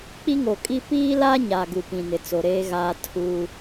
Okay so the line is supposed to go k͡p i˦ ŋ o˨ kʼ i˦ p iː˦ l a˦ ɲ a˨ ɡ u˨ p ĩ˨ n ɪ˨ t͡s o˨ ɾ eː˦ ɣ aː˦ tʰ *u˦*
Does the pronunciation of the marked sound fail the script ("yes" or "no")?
no